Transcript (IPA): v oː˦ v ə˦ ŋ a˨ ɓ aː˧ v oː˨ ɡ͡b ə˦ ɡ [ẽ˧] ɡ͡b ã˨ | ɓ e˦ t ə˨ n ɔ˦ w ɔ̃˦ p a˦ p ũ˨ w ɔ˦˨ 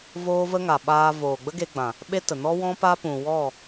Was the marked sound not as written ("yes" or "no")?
yes